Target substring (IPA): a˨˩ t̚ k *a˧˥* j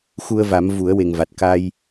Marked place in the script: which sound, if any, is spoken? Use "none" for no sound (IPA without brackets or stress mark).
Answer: a˧